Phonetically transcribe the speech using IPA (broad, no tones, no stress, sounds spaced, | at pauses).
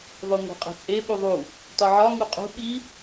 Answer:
ðˤ o ŋʷ æ̤ qʼ e̤ t͡sʼ e ɓ u ðˤ u | t ɒ ʕ ɒ ŋ u qʼ ṳ ɓ i